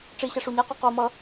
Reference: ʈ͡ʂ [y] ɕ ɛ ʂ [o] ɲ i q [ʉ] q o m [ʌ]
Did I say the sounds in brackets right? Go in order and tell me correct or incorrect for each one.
incorrect, incorrect, incorrect, correct

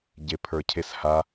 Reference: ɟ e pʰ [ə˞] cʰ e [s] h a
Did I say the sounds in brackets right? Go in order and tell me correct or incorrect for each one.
correct, correct

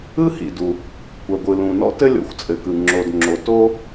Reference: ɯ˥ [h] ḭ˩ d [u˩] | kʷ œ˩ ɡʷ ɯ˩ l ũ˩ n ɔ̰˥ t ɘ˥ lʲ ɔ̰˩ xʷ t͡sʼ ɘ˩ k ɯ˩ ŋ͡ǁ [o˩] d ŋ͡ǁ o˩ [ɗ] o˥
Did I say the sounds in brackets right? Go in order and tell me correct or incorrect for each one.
correct, correct, correct, incorrect

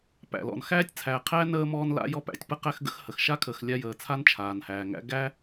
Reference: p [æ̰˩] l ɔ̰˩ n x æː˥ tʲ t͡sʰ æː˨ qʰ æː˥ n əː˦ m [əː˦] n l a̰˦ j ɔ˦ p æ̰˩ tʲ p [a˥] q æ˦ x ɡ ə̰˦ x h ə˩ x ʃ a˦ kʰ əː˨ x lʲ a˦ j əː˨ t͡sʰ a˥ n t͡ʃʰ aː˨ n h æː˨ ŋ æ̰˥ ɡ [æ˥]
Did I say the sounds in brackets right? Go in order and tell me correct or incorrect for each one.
correct, incorrect, incorrect, correct

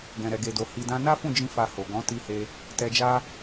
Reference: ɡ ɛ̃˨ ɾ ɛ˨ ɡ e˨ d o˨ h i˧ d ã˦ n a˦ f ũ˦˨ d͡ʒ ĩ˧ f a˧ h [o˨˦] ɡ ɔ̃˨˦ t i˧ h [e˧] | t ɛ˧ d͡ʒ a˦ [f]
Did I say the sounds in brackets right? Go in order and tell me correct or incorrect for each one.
incorrect, correct, incorrect

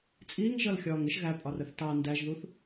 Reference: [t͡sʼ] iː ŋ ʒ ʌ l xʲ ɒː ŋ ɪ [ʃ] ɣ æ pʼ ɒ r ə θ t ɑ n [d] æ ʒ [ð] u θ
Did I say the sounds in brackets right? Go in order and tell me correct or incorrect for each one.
correct, correct, correct, correct

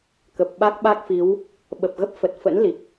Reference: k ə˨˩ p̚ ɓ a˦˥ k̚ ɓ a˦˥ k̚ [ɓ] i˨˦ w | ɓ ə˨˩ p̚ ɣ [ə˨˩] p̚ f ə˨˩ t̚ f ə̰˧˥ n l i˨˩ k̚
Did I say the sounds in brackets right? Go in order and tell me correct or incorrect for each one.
incorrect, incorrect

